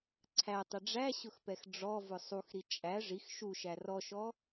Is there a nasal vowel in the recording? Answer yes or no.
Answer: no